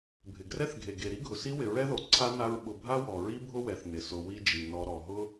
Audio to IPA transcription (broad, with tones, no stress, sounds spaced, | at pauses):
bʱ ɪ˩ ɡ r ɛ˥ θ ɡʱ e˩ ɡ e˩ ɾ i˥ ɡʱ ʊ˩ s i˥ w ɪ˨ ɹ ɛ˥ ð o˨ ǀʰ a˥ n a˦ ɹ ɓ ʊ˨ bʱ a˥ w ɔ˩ ɹ i˥ bʱ ʊ˥ w ɛ˩ θ n ɪ˩ s ʊ˨ w i˦ d͡ʒ i˩ n ɔ˨ ɾ ɔ˩ ɦ ʊ˦